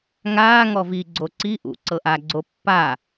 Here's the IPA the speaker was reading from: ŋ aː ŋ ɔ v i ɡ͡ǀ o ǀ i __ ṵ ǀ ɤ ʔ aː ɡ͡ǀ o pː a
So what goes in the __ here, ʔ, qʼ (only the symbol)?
ʔ